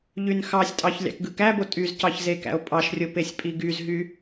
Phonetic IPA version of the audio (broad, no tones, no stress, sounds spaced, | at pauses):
ʎ y n x ɑ sʲ tʼ ɑ ç lʲ ɑ̰ k ɡ ɯ k æ b o tʼ y z c ɑ ç z e k æ̰ o̯ pʼ ɑ ʃ rʲ o p e sʲ pʼ i ɡ y z ɦ y